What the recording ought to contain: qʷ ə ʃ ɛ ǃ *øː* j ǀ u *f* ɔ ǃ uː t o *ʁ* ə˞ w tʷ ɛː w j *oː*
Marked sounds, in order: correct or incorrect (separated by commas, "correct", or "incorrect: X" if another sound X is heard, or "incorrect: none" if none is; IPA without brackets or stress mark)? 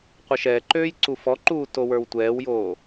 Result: correct, correct, incorrect: w, correct